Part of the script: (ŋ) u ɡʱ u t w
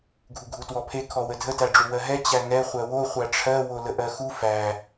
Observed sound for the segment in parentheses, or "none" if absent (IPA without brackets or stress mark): ɡʱ